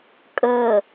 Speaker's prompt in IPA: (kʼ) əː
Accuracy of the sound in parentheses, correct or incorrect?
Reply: correct